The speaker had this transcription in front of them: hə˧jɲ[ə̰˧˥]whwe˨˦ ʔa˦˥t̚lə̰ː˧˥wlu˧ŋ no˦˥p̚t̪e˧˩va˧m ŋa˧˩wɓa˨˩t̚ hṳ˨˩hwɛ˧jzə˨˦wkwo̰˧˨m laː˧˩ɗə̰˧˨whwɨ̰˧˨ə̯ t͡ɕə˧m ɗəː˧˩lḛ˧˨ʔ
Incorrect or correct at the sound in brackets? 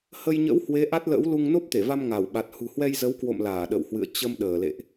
correct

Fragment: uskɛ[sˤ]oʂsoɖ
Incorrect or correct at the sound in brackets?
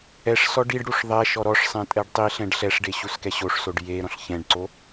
incorrect: ɕ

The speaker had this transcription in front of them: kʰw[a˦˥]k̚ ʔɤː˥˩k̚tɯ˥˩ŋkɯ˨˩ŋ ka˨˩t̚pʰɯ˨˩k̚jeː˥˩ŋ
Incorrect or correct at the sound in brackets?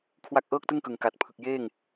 incorrect: a˥˩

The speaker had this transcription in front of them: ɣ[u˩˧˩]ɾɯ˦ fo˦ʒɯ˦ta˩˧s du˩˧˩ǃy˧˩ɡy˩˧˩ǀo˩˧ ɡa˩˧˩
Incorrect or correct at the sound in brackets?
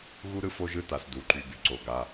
incorrect: u˦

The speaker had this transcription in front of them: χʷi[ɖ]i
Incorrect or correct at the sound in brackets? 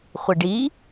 correct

